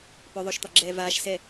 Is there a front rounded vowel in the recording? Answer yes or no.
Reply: yes